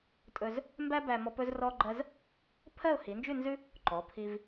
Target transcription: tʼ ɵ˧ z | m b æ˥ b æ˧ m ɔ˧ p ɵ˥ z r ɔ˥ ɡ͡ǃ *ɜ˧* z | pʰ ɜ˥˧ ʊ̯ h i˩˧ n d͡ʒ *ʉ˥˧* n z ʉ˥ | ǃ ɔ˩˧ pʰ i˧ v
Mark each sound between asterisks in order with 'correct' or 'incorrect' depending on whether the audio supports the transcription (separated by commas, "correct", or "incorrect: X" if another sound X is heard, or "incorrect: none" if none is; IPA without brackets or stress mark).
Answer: incorrect: ɜ˥, correct